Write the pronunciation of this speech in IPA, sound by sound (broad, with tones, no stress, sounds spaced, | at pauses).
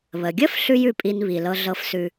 β ə˩ ɡʲ ə˥ f ɬ ʉ˥ j ʉ˧ pʼ i˧ n β i˩ l ɤ˧ ɮ ɤ˧ f s ʉ˧